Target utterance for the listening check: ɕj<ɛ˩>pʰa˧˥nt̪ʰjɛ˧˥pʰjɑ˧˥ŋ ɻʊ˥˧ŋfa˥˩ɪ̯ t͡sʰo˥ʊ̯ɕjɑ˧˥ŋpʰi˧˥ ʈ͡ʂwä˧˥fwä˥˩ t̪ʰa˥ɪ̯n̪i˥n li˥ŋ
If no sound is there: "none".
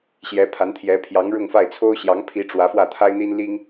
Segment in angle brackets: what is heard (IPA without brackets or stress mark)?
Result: ɛ˧˥